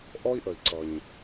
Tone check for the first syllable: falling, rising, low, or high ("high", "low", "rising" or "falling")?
high